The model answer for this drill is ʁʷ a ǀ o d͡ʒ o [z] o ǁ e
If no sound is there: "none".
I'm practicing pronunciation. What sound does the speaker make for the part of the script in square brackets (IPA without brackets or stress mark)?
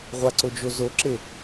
z